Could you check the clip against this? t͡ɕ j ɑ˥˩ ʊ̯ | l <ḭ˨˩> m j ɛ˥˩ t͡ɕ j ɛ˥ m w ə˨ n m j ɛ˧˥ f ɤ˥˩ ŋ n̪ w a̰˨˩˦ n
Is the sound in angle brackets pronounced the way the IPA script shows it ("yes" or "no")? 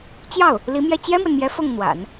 no